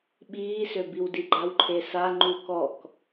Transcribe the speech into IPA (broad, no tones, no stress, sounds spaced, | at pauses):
ɓ iː s ø b i w d i ɡ͡ǃ a w ǃʰ e s a ŋ͡ǃ u k ɔ k